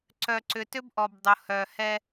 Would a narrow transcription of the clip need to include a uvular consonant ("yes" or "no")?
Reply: no